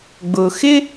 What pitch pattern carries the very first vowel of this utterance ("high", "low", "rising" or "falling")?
low